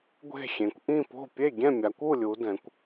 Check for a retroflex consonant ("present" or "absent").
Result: absent